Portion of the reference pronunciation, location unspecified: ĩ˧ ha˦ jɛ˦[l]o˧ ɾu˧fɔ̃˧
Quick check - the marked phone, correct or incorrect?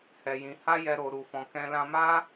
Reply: incorrect